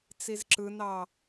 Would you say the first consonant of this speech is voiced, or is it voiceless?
voiceless